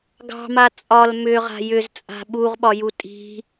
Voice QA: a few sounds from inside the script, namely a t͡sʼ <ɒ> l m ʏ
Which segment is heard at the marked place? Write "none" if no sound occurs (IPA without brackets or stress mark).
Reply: ɒ